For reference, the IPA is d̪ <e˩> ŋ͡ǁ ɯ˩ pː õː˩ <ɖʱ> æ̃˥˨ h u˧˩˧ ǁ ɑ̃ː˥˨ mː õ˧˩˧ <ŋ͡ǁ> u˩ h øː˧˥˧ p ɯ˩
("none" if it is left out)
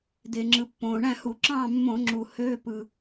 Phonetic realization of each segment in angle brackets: e˩, ɳ, ŋ͡ǁ

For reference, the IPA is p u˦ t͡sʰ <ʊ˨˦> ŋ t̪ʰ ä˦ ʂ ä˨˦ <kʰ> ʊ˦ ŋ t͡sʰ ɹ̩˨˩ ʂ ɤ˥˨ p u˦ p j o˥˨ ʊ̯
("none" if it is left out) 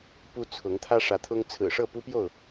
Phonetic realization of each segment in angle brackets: ʊ˨˦, t̪ʰ

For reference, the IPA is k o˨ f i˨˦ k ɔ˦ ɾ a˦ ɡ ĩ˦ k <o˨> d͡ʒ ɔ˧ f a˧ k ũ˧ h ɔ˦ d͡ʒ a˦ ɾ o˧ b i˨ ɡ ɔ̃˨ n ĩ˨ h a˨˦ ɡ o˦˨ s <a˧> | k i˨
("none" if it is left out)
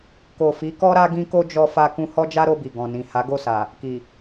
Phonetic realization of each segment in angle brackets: o˦, a˨

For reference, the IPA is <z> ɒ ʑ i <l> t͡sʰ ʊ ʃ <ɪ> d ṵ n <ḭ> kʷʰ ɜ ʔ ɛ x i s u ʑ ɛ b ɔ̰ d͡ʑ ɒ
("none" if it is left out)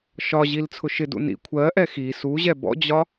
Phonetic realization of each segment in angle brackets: ʃ, l, ɪ, ḭ

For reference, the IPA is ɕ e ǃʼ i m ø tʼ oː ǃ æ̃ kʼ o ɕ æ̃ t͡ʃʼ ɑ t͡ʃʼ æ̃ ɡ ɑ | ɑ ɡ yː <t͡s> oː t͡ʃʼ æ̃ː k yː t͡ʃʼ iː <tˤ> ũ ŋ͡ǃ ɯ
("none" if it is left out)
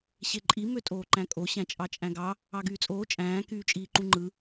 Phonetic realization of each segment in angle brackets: t͡sʼ, ǃ

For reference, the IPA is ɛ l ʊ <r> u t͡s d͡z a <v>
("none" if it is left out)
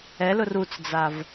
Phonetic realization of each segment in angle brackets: r, v

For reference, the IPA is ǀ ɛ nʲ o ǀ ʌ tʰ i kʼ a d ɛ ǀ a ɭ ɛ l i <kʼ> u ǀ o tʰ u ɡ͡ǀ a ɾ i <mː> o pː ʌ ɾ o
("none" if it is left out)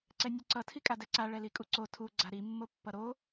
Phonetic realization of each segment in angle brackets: kʼ, mː

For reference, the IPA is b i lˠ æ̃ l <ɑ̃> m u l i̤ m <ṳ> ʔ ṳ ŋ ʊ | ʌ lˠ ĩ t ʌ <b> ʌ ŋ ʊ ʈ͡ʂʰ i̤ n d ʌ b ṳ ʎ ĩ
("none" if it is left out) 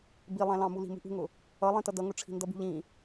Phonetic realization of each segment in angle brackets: ɑ̃, ṳ, d

